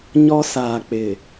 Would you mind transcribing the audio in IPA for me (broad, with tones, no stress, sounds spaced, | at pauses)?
ɲ ɔ˦ s aː˨ k͡p ɪ˨